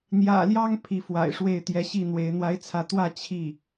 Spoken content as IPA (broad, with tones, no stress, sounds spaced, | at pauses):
n̪ j ä̰˨˩ l j ɑ˥ ŋ pʰ i˧˥ f w a̰˨˩ ɪ̯ ʂ w e˥˩ ɪ̯ t̪ j ɛ˧˥ ɕ i˥˩ n̪ w e˧˥ ɪ̯ n̪ w a˥ ɪ̯ t͡sʰ ä˥˧ t̪ w ä˥˧ t͡ɕʰ i˥˩